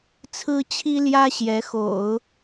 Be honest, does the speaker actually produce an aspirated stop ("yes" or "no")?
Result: yes